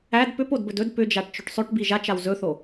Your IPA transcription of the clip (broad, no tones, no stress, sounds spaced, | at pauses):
æ d p ʏ p o d b ɵ d ɵ d p ʏ d͡ʒ a ʈ t͡ʃ ɵ ʈ sˤ ɵ ʈ b i ʒ a t͡ʃ a w z ɵ θ o